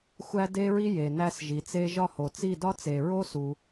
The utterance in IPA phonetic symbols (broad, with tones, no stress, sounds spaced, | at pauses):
xʷ æ˥ d e˥ ɹ i˥ j e˨ n æ˥ s ʒ i˨˦ t͡s e˥ ʒ ɒ˥˧ h o˨ t͡s i˥˧ d ɒ˥ t͡s e˨ ɹ o˥ s u˨